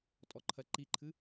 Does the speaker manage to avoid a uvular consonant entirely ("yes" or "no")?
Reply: yes